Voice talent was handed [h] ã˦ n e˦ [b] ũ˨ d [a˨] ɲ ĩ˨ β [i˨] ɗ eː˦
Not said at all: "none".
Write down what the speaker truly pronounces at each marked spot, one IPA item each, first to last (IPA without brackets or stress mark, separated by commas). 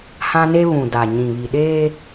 h, β, a˨, i˨